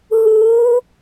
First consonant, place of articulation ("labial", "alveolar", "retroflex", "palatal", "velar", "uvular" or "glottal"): glottal